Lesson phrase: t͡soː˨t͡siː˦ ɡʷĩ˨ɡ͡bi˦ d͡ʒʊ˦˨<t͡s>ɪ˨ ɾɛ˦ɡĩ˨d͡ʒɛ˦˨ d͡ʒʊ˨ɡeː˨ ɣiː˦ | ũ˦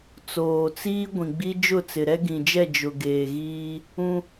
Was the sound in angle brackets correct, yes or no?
yes